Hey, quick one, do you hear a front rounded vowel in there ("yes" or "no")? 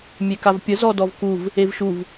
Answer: no